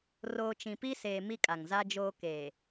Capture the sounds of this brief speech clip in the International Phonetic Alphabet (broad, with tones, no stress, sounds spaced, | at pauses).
r oː˨ t͡ʃ ĩ˨ p i˦ s eː˨ m i˦ kʼ a˨ ŋ z a˦ d͡ʒ oː˦ k eː˨